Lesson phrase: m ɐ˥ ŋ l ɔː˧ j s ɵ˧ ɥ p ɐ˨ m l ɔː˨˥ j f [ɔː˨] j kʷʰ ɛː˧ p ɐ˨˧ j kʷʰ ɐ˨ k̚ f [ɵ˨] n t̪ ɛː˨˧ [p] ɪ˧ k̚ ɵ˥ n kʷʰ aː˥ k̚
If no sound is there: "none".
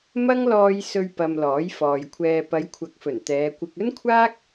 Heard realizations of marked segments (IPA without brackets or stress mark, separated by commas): ɔː˨, ɵ˨˩, kʷ